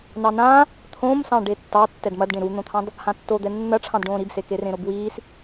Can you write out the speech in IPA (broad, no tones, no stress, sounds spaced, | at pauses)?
n ɑ n ã | t̪ʰ õː m s ɑ̃ ɖ e tː ɑ tː ɛ d m ɐ d ɖ ẽ ɾ u n̪ õ t̪ʰ ɑ̃ d | h ã tː o d̪ ɛ nː ɐ ʈ͡ʂʰ ɑ̃ d ɖ õː ɾ i b s e k e r ẽ ɾ o b w iː s